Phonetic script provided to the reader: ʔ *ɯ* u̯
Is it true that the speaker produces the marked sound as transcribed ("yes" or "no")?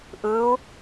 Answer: yes